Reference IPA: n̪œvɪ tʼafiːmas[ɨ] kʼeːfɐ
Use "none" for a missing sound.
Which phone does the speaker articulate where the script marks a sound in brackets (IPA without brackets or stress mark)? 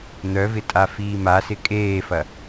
ɪ